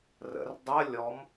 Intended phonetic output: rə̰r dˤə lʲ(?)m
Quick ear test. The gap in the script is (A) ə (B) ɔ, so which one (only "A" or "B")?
B